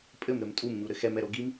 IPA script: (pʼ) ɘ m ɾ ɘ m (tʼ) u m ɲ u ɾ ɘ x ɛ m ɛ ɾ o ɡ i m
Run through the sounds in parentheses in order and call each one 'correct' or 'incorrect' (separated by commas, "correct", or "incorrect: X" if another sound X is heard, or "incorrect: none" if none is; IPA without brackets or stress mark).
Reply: correct, correct